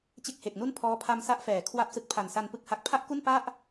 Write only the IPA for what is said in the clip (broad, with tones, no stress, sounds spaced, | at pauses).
t͡ɕ e˥˩ k̚ h e˨˩ k̚ n u˥˩ n pʰ ɔː˦˥ pʰ a˧ m s a˦˥ ʔ f ɛː˩˦ kʰ w a˦˥ p̚ s ɯ˨˩ k̚ pʰ a˨˩ n s a˧ n p ɯ˥˩ k̚ h a˦˥ k̚ pʰ a˥˩ ʔ k u˥˩ n p a˥˩ ʔ